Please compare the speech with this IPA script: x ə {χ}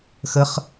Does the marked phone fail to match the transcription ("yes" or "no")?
no